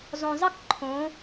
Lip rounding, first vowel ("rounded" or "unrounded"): rounded